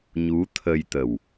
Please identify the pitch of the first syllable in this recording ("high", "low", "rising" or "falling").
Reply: rising